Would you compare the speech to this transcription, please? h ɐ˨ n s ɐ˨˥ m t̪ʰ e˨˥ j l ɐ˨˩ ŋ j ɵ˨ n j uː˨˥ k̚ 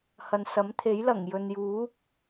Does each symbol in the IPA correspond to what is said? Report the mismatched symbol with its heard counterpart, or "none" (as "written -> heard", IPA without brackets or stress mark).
none